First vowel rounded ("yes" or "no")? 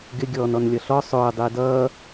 no